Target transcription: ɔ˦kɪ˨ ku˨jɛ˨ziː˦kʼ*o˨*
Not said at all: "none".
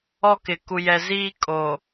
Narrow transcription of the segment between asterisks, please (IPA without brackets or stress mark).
o˨